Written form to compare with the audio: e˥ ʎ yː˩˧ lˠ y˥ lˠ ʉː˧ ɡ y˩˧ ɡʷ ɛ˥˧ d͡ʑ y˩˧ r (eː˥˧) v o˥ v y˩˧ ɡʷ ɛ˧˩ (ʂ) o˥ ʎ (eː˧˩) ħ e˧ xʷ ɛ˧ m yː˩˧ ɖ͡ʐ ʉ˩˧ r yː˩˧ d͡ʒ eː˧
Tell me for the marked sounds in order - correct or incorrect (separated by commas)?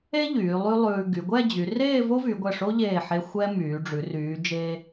correct, correct, correct